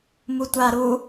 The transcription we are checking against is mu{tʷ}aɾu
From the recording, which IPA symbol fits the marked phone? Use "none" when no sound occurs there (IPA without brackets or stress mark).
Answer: tʷ